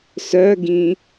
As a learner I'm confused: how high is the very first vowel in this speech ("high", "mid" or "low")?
mid